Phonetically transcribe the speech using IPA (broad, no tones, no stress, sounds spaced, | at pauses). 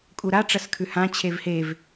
kʼ u ɾ a ʈ͡ʂ ɐ s kʰ ʉ h ã t͡ɕʰ e v h e v